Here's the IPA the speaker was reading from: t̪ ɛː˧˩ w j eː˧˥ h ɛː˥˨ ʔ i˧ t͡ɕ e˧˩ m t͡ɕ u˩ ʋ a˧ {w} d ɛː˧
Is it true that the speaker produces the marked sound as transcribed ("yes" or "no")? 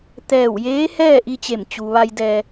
no